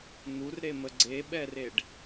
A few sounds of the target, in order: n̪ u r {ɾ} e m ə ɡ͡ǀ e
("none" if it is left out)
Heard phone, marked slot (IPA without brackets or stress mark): ɾ